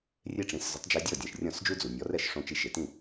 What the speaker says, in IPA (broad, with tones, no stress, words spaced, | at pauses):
rʲe˥ʈ͡ʂĩ˩˥s zʊ˩˥tˤd͡ʒi˧dʲɔ˥˩ dʲɛ̃˩ʃrʲɔ̃˥˩sd͡ʒu˥d͡zu˩ nʲɔ˩˥rɛ˥˩ʃ ʂõ˧t͡ʃi˧ ʃe˩tĩ˥˩